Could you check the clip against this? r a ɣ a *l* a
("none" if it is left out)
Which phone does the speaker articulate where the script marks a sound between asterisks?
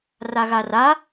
r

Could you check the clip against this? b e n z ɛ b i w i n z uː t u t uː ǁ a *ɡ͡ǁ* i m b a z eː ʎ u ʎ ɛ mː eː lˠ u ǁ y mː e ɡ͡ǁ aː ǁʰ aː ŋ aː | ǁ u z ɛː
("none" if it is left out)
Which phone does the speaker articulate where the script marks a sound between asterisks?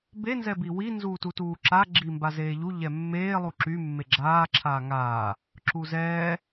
ɡ͡ǁ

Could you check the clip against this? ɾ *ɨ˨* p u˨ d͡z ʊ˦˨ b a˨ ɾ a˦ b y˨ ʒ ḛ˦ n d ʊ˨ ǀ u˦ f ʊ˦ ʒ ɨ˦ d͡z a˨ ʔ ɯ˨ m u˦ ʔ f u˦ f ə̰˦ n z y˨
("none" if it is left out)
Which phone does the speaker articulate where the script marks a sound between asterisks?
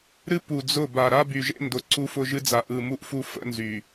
ɨ˦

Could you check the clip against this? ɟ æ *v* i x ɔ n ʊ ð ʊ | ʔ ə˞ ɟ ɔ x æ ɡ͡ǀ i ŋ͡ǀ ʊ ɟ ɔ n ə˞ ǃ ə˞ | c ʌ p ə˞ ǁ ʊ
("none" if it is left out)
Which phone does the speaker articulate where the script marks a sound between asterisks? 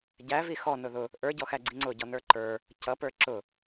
v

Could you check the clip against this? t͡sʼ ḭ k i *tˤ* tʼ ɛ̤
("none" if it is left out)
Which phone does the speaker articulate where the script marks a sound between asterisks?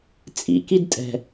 d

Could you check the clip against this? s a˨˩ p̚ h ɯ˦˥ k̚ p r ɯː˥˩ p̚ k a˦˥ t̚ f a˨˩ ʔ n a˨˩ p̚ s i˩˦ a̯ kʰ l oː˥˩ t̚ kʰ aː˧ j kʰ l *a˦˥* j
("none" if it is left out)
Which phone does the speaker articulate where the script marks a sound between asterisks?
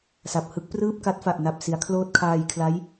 a˦˥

